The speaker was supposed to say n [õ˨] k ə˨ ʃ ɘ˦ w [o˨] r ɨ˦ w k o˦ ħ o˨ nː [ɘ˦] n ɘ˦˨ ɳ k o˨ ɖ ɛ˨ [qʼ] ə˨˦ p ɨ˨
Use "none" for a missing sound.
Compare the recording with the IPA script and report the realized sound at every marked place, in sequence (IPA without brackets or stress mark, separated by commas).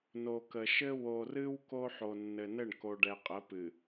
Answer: o˨, o˨, ɘ˨, qʼ